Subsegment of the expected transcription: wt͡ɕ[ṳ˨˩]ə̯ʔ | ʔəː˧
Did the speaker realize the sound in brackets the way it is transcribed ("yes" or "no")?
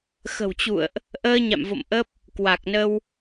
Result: no